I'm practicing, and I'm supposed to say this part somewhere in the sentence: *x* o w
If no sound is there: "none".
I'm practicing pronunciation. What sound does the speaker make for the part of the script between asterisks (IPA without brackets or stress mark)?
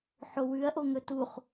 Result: ħ